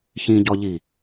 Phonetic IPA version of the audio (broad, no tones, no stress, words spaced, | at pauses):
çĩɟɔʎi